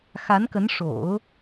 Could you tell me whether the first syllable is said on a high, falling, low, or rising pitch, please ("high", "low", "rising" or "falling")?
rising